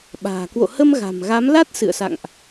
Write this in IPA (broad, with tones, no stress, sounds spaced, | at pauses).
ɓ a̤ː˨˩ k w o̰˧˨ h ə˧ m ɣ a̤˨˩ m ɣ a˨˦ m l a˦˥ t̚ s ɨ̰˧˨ ə̯ s a̰˧˨ ŋ ʔ